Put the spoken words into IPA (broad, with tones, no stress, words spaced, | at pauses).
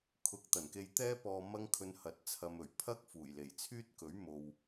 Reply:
kʰʊ˧k̚ t̪ɐ˨˩nke˧jt̪ɛː˥pɔː˧ mɐ˥ŋkʰɵ˧nhɐ˨˥t̚ t͡sʰɐ˧mɵ˨˩ɥ pʰɐ˥k̚fuː˨˩j le˨˩jt͡sʰyː˥t̚kɵ˨˥ɥ mo˨w